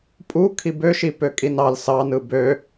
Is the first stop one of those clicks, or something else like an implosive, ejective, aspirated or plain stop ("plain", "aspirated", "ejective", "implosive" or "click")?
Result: ejective